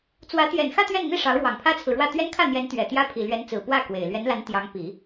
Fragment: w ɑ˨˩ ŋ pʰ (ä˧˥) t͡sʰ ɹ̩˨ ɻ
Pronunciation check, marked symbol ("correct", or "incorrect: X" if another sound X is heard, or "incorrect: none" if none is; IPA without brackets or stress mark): incorrect: ä˥